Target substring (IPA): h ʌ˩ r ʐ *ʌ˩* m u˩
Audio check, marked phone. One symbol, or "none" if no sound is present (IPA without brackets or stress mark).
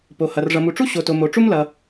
ʌ˩